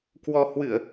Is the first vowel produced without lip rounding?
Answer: no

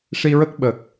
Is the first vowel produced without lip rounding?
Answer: yes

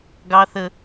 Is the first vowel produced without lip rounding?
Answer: yes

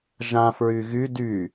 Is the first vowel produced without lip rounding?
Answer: yes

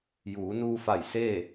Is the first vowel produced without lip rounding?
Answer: no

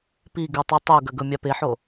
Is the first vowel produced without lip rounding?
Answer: yes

